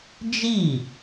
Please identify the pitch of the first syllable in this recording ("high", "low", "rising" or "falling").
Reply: falling